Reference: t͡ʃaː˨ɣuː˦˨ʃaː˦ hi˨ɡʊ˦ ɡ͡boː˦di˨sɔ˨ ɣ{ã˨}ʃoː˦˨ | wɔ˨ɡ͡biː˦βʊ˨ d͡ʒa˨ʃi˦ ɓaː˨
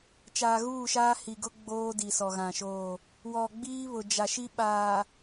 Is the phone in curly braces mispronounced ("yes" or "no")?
no